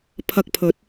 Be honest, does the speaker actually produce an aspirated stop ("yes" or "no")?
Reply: yes